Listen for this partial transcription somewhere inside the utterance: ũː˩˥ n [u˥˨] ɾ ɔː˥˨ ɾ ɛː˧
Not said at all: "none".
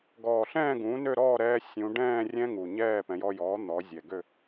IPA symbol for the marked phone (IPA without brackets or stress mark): ø˥˨